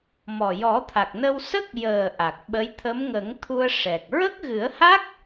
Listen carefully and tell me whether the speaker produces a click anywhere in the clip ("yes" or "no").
no